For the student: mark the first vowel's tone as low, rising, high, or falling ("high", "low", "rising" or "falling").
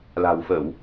low